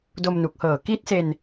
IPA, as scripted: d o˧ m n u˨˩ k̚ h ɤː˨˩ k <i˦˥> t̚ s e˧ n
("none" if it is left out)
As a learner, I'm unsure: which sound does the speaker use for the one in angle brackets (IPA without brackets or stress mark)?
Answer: i˦˥